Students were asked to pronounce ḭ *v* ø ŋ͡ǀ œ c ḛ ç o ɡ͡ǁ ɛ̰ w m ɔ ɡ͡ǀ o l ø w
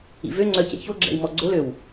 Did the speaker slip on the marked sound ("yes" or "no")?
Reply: no